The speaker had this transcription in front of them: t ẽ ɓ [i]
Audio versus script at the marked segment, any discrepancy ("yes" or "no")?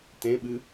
yes